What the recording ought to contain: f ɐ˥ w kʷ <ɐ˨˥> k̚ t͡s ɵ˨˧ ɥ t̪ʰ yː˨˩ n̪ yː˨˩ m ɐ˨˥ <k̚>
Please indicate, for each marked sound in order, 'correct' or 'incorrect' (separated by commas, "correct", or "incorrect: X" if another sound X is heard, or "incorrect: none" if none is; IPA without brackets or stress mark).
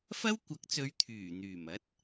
correct, incorrect: t̚